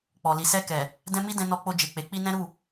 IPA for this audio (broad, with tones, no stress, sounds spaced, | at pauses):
k͡p ɔ˨ l i˨ s ɛ˧ k ɛ˨ | d ɛ̃˦ m i˦ d ɛ̃˧ n ɔ˧ k͡p o˧ d͡ʒ e˨ k͡p e˨ k͡p i˧ n ɛ̃˦ ɾ u˦˨